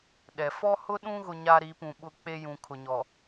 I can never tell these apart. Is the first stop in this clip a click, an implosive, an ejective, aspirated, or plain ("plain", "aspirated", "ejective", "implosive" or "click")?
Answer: implosive